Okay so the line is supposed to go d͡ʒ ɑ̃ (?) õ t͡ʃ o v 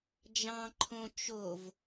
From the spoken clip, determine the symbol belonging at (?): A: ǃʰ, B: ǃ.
A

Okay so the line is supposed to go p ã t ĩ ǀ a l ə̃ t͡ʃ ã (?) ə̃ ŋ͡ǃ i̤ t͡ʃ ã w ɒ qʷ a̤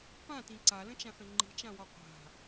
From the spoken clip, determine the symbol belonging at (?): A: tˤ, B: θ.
B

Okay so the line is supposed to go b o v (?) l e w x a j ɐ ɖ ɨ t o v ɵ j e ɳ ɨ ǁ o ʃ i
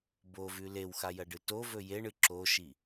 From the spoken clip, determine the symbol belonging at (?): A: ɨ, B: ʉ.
B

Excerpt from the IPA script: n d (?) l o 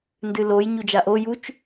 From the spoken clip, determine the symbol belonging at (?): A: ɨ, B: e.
A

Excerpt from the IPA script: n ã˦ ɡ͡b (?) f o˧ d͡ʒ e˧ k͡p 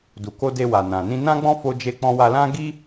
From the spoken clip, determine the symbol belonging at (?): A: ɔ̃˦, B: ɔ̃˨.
A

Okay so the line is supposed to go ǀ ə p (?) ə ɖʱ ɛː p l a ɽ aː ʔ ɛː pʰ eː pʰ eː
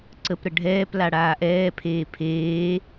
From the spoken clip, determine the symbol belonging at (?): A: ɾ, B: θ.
A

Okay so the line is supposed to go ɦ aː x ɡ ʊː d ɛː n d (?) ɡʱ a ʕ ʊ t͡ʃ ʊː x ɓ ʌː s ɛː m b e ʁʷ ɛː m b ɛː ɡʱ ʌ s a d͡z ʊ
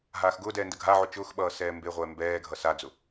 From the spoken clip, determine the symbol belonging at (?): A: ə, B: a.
A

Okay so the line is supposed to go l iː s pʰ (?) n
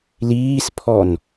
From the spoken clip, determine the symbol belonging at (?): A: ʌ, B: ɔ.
B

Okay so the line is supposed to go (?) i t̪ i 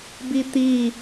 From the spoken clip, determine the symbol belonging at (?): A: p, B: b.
B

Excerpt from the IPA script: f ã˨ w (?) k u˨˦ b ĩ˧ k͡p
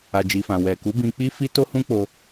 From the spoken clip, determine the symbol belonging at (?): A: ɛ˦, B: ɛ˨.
B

